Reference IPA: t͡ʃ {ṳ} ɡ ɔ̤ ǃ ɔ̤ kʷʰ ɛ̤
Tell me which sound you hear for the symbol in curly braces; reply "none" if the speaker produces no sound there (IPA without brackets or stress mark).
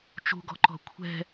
ṳ